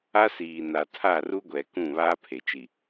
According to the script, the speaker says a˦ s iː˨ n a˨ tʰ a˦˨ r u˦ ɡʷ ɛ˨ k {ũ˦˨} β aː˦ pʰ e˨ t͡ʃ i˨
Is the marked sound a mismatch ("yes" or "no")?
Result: no